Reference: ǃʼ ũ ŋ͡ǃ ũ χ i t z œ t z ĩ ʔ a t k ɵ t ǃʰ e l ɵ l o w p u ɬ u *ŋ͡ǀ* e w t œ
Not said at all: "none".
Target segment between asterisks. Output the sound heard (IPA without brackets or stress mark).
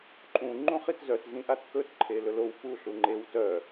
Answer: ŋ͡ǃ